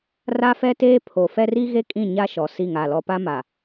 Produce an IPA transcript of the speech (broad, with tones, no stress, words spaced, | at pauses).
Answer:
ra˦fɛ˦teː˦ pʰo˨fɛ˦r i˦ɣe˦kʼĩ˦˨ ɲa˦ʃɔ˨ si˦˨ŋa˦˨lɔ˦ pa˦ma˨